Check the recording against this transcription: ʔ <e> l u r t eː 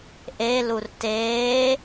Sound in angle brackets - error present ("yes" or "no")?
no